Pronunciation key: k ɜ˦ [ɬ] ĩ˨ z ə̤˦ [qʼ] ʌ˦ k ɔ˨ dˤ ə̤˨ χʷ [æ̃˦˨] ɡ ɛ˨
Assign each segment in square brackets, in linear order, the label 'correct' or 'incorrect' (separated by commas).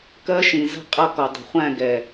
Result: incorrect, correct, correct